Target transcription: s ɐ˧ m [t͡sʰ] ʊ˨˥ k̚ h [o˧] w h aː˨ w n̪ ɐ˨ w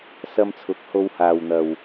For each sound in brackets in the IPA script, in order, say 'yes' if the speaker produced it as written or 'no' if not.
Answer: yes, yes

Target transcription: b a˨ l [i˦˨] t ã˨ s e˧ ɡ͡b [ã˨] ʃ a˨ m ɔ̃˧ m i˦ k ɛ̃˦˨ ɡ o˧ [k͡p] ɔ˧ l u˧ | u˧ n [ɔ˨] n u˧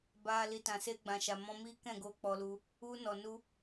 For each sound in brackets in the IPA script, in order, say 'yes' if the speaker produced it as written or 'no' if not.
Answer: no, yes, yes, yes

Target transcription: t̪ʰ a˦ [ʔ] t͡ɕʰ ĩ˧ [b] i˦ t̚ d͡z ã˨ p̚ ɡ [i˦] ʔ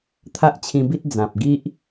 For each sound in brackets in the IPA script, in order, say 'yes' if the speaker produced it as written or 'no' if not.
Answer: yes, yes, yes

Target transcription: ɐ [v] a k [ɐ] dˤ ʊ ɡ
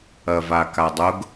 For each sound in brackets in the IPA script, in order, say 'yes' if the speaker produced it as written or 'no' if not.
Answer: yes, no

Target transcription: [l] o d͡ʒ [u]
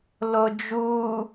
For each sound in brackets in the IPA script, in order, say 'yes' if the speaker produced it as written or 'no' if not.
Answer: yes, yes

